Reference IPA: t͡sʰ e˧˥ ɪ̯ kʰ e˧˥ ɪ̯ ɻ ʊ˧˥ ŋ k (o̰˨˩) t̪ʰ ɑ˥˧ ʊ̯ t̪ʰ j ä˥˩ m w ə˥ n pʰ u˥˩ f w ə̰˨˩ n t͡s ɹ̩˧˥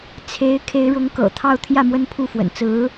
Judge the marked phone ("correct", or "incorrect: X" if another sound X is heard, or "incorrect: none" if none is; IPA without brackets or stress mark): incorrect: ɤ̰˨˩